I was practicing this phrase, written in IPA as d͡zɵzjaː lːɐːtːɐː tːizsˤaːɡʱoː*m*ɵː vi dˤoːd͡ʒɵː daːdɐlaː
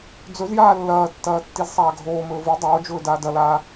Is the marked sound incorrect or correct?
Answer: correct